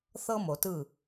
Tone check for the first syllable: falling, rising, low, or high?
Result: high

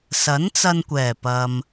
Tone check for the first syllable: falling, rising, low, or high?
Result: rising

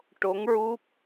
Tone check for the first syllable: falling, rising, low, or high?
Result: rising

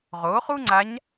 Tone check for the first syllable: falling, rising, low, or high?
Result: rising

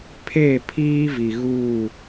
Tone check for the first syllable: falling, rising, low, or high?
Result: falling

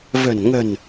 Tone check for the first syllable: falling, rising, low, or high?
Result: low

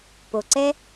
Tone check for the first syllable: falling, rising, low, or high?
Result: low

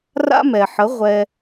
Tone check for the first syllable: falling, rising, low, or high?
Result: high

